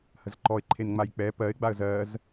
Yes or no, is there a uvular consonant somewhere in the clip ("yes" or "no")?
no